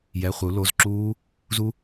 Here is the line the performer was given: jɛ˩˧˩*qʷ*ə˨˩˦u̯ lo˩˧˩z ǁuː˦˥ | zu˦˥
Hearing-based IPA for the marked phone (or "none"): χʷ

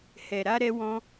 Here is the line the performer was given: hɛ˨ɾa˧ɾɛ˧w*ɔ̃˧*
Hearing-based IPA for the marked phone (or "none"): ɔ̃˧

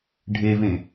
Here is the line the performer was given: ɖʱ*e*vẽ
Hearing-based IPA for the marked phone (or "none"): e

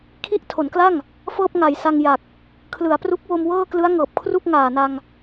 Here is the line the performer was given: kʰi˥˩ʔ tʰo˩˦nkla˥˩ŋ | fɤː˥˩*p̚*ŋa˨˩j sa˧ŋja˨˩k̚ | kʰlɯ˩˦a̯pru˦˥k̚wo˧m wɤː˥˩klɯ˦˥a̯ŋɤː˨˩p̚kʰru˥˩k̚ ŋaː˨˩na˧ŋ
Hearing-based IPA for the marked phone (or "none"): p̚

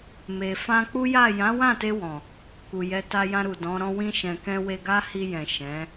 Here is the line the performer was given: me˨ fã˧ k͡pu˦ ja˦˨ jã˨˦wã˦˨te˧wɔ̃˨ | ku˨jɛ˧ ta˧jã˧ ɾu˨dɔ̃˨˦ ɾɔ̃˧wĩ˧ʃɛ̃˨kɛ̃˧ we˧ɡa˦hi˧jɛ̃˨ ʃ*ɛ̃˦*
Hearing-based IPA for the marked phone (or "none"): ɛ̃˨˦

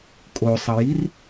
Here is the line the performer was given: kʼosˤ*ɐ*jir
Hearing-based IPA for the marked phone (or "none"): ɐ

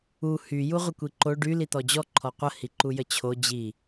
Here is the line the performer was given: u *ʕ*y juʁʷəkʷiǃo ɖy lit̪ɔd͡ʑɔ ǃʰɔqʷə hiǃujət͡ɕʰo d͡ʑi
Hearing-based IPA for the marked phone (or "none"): h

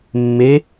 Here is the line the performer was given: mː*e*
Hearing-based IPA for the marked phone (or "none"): e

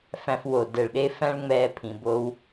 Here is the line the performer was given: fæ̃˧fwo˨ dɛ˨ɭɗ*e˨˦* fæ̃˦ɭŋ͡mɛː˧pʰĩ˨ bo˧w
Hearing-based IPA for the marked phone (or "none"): e˧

